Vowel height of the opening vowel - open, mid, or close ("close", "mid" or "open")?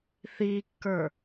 close